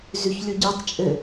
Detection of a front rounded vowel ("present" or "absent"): absent